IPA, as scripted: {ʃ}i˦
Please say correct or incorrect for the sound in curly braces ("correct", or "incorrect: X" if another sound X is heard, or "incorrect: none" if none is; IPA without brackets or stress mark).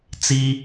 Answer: incorrect: t͡s